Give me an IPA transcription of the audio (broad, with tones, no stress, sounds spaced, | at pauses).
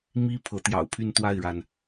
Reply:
m i˥ pʰ ɤ˧˥ t̪ j ɑ̰˨˩ ʊ̯ pʰ y˥˧ n t̪ w a˥˩ ɪ̯ ɻ a˩ n